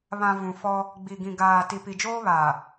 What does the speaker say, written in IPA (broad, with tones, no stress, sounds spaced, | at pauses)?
β ã˨ v ũ˨ f ɔ˦ | ɡ͡b i˨ ɡ ĩ˨ ɡ aː˨ t i˨ p i˨ d͡ʒ oː˦ β aː˨